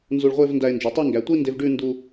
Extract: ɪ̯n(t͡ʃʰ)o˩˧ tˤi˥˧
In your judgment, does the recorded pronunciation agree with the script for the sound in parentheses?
no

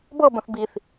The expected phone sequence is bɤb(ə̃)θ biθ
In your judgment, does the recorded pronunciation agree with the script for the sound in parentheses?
yes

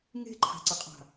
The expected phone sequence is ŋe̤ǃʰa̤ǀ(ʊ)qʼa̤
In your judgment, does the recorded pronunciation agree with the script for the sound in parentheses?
no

